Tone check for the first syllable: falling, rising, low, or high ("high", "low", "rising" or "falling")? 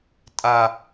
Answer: high